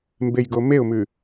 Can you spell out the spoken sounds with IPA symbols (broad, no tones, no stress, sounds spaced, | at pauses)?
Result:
m b e j ɡ o m e ʊ̯ m ʉ